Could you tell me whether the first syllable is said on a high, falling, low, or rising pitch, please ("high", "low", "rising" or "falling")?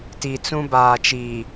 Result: low